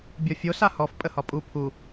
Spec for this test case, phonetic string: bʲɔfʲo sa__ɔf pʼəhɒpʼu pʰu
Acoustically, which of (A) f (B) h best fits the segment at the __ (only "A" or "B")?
B